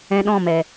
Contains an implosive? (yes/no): yes